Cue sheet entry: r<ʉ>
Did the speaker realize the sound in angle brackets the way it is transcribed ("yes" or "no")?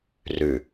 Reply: yes